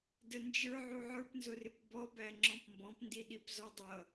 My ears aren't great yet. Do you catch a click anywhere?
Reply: yes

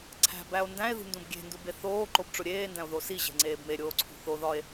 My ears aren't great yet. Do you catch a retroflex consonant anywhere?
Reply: yes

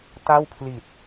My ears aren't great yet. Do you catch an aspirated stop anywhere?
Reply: yes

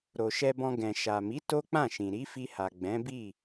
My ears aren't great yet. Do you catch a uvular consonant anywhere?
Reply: no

